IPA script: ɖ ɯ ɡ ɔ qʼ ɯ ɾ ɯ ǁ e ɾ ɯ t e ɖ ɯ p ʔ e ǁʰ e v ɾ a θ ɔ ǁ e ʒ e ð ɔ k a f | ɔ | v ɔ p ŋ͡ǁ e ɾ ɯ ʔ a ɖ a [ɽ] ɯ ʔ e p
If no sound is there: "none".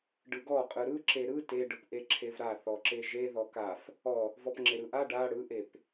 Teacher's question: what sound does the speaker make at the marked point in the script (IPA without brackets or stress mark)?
ɽ